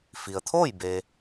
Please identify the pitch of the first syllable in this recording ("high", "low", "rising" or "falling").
low